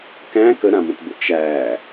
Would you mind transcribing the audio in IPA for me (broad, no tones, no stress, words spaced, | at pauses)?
kæ̃ kəɾãmə̃tbə̰ t͡ʃæ